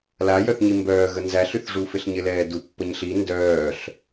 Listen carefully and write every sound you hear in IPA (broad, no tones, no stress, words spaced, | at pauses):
lajœθɲi mbœːɣə nzæɬyθʐufɪɬ ɲɪlɛːdu pːəɲɬi ndœːɬ